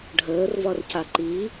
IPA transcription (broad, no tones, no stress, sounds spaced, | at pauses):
ɖʱ əː r v ɒ r c a ǃ i